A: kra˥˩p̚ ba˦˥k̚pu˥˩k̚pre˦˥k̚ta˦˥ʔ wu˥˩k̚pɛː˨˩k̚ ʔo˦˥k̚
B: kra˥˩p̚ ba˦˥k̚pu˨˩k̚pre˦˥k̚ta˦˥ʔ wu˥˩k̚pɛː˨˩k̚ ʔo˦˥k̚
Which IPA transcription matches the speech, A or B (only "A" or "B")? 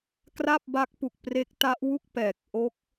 B